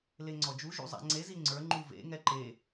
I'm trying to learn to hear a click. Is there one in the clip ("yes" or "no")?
yes